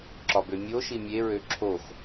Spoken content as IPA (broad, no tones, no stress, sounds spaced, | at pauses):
ǁ ɒ b ø mʲ o ʃ i mʲ e ɹ ø ǁʰ o x